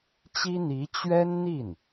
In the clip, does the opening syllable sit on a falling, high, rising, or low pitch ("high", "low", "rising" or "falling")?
high